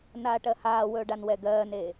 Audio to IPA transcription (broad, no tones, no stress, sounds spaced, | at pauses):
n aː ʈ ɜ h aː w ɵː ɖ a n w ɛ ɡ ɜː n e